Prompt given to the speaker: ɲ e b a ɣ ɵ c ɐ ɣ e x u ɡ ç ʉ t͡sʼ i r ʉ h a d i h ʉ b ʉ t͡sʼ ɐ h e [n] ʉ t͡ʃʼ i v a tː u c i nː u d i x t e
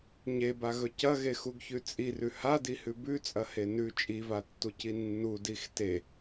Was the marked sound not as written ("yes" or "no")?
no